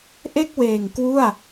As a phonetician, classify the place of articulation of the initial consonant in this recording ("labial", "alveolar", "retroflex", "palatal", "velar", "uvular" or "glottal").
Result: glottal